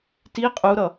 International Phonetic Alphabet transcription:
ti qʼuɾʌ

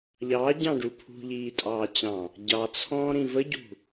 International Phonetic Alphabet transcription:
ʎɑːɟɑ̃ɖu pʰṳʎiːtʼɑːt͡ɕɑ̃ | ɟɑt͡sʰɔ̃ːɾĩ vəɟṳ

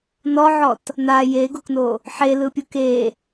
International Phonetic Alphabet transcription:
nɔʕɔt | na jeɡokno | ħelɯpʲu ke

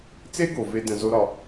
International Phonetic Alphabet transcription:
t͡se˥ɡo˩ve˨ də̃˩ zo˨ɾɒ˩

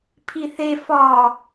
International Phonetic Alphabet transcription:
pʰiθe fɒ

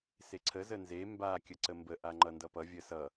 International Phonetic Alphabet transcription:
seǀʰə zənze mba kʲəǀəmbə ʔaŋ͡ǃʌndʌpʌ vʲəsʌ

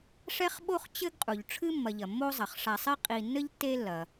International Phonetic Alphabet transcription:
ʂɛ˥χɓo˥χ t͡ɕɘ˥ɡqʼu˩ʎ ʈ͡ʂʰɨ˥mːɐ˨ʎɐ˩ mːo˥zˤɐ˩χ ʂa˨sˤɛ˥ qʼi˨ nːɘ˥ʎtːe˦lːɐ˩

